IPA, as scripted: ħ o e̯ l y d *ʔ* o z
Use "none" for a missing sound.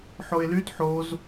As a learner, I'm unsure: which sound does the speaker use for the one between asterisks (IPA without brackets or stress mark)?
ħ